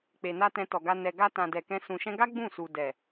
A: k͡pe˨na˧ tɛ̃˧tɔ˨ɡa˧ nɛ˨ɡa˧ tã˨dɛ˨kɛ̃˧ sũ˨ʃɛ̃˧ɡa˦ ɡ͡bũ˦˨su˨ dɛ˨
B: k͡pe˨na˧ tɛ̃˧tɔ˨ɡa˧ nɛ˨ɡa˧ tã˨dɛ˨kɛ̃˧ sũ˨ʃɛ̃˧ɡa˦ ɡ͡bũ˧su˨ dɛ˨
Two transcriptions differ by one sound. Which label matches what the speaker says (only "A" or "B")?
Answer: A